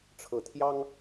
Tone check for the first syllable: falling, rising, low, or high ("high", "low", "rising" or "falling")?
low